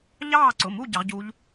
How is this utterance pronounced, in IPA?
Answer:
ʎɑː˦˨ǀʊ˩˧˩mu˦˨ ɟɑ˨˥ʁɟu˦˥ʎ

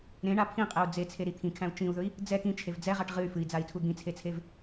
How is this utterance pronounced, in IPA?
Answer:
ɾẽɳa pʰĩqʼɛu̯ d͡zet͡sʰeɾi t̪ʰĩkʰæ̃u̯ t͡ʃĩu̯ðɵi̯ | d͡zɛ kĩt͡ʃʰev d͡zɛʁaʈ ʁɨy̯ fɨi̯d͡zai̯tʰu d̪ĩt͡sʰet͡sʰev

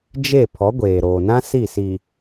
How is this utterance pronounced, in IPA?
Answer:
d͡ʒe˦˨ pʰɔ˨˦ɡʷeː˨ɾoː˨nã˦ si˦˨si˨

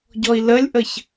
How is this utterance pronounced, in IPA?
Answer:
ɟɔi̯ləlʲʔəç

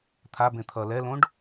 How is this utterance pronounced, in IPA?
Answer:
t̪ʰabẽ t̪ʰʌ lɛlõɖ

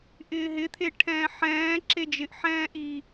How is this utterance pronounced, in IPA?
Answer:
ʔɪːɦɪt̪ʰe ʈʰɛ̃ːħɛ̃ː ǁed͡ʒɪʔ ħɛ̃ːʔi

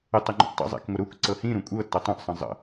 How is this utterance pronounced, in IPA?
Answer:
ɪtˤeŋ͡ǃṵʔ tˤə̰ zˤḛkŋʷɪɾuk ǀɤhĩɾũ kʷʼɤtːɤ tˤũʔ sˤə̃zˤə̰

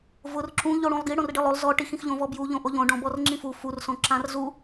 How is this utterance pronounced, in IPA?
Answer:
vʊr ǁũ ʎoɽũlˠɡi ɽõrɖilˠolˠ zɔ ʈix ĩxʎõvɔbju ʎõʔoʎõ ɖɔ̃bɔrŋ͡ǁĩfu fur sõǁãrzu

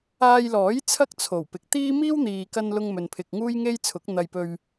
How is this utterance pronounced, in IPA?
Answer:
aː˧jlɔː˨˥j t͡sʰɐ˥k̚t͡sʰo˨˩wpɪ˨k̚t̪iː˥ miː˥wn̪iː˨kɐ˧n lʊ˧ŋmɵ˨npʰɪ˨k̚ ŋuː˥jŋe˥jt͡sʰʊ˨˥k̚ n̪ɐ˨jpɵ˨ɥ

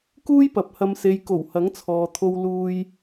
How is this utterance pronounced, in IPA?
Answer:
kuː˥jpɐ˨˥p̚hɐ˧m se˨jko˨˩w hɐ˨˥ŋt͡sʰɔː˨t̪ʰo˧w luː˧j

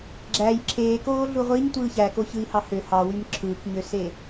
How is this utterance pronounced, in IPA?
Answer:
ɡ͡ǁæj ǁʰeːkoːɮu ʁʷiɲtʷɯ çækoçɯi̯hɑ hø hɑwym ǁʰɯːkɲøse

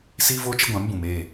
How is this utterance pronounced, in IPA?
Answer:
siː˦voː˦t͡ʃɪ˦ɡʷã˨˦m bũ˨meː˦˨

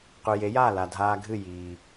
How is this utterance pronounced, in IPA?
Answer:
qʉ˩je˩˥jaː˥˩ la˩ dʱaː˧ɡʱɨ˥˩ jiː˩

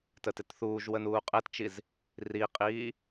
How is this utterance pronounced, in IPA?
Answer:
tətɪtθuːʒwə nuːqʼɛtt͡ʃiz | riqʼiː

